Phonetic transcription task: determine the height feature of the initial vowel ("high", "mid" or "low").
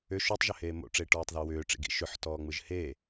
high